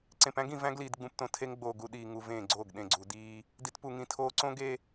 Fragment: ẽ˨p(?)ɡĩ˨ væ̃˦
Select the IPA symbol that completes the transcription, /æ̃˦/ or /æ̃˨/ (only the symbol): æ̃˦